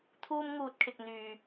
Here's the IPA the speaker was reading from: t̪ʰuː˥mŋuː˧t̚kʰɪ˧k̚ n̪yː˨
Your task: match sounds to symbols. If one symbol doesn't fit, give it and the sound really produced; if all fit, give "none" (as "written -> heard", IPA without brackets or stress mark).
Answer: none